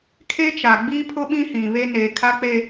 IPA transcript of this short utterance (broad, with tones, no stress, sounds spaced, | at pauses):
kʰ e˦ t͡ʃ a˨ ɡ͡b iː˦ pʰ ʊ˦ ɓ ĩ˦ h ĩ˨ β e˦ n eː˨ kʰ a˦ k͡p e˦